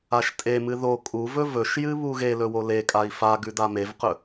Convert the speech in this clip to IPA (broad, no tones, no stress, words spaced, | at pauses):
aʃtʼemɨ ðo kʼuvɵ vɵʃjɨ βuɣelɵ wolekʼai̯ fa ɡʉdamevqɵ